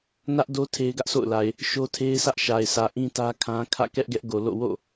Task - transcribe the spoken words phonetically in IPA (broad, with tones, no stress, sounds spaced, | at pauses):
n ä˦ ʔ d o˦ tʰ e˦ ɪ̯ ɡ ä˦ ʔ sʰ o̰˦˨ ʊ̯ l a˨ ɪ̯ | ʃ o˦ tʰ e˦ ɪ̯ sʰ ä˦ ʔ ʃ a˨ ɪ̯ s ä˨ ʔ ĩ˦ t ä˦ kʰ ã˦ kʰ ä̰˦˨ k ɛ˦ ʔ ɡ ɛ˦ ʔ ɡ o˨ l o̰˦˨ w o̰˦˨